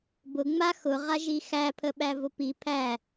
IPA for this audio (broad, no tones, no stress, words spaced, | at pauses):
bʊ ŋ͡ma xʊ ʁaʒixæ pʰəɓævʊpi pʰæ